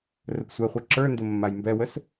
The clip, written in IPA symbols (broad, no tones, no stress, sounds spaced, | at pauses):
r ə p sʷ ɛ χʷ ɛ ǁ ə˞ n d ə mː a j m b ɛ w ə s